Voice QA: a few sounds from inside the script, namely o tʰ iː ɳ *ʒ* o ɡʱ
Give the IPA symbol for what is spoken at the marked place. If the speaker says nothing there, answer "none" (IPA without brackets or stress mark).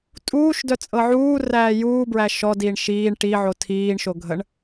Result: ʃ